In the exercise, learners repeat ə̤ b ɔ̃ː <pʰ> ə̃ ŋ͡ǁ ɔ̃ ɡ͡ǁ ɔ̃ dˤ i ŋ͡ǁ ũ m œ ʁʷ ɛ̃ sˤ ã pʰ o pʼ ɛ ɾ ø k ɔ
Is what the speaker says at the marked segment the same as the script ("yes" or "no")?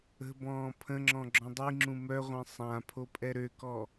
yes